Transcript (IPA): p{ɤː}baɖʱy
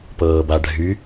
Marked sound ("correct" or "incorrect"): correct